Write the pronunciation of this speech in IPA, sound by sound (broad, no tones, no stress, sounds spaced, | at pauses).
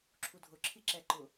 ǁʰ u dʱ ʊ ǁʰ i ǁ ɛ ǃ ʊ